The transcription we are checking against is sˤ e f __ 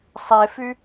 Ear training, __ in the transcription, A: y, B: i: A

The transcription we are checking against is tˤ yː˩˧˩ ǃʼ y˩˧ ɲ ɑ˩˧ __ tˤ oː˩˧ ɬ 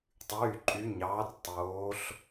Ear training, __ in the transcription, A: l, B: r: B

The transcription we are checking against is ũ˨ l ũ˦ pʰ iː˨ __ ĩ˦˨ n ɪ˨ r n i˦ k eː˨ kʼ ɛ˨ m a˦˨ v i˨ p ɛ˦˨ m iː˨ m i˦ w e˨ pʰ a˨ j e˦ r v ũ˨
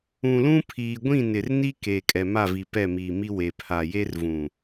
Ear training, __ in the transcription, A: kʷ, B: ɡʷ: B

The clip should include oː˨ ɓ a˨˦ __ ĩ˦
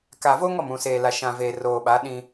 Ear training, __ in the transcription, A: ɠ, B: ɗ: B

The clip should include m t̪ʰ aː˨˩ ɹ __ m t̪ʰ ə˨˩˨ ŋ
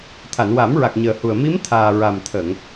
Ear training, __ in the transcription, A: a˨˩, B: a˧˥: A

